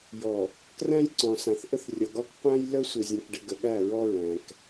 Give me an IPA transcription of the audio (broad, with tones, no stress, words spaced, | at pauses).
jɔ˨ | kræ̃˦jǀɔ̃˨sã˨θ ʔə˦θrʲɒ˨ɡɒ˦k qʷæ̃˦j lə˦ sʷe˨zʲɔ̃˨kɖɘ˨ ɡə˨ɠæ˦˨ɹɔ˦ ɹæ̃˨k